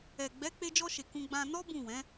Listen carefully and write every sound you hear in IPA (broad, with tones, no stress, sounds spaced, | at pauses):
ɛ˨ ɡ͡b ɛ˨˦ k͡p e˧ d͡ʒ ɔ˧ ʃ e˨ k ũ˧ ɡ͡b ã˧ n ɔ˦ b ũ˦˨ w ɛ̃˨˦